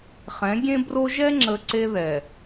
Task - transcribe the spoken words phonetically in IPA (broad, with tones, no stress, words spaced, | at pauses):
χɛ̃˨˦ɡʲẽ˦bro˦ ʒɛ˦ ŋ͡ǁə˨ ǀe˦ðɛ˨